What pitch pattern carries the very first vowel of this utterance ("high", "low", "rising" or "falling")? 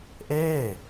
falling